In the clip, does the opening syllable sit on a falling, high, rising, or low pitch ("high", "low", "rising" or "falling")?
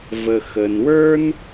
low